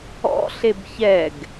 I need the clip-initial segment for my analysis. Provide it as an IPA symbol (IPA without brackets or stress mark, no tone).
ɔ̰